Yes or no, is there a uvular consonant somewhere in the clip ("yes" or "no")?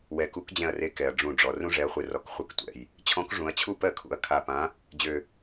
yes